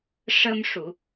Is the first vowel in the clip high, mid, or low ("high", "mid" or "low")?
mid